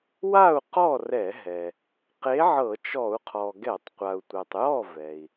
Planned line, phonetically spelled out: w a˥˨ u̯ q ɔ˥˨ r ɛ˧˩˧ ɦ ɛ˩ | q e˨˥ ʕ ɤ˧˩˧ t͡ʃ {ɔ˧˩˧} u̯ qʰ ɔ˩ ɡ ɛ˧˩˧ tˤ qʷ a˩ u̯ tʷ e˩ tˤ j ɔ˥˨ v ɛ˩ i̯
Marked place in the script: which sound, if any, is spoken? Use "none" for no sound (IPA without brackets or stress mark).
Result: ɔ˧˩˧